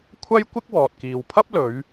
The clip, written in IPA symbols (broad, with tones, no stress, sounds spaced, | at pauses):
kʷʰ ɐ˥ j kʷ ɪ˥ k̚ w ɔː˨ t̚ k iː˨ w pʰ ɐ˥ p̚ l ɵ˨˧ ɥ